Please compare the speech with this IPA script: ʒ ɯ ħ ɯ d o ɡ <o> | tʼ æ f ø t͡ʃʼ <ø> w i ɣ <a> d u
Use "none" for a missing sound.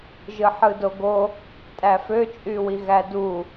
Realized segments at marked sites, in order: o, y, æ

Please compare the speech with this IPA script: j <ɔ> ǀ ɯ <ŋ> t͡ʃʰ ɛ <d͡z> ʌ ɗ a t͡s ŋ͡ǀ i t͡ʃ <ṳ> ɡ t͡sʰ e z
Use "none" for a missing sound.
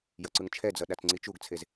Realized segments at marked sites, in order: ʌ, ŋ, d͡z, u

